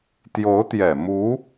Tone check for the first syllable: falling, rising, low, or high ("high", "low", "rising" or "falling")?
rising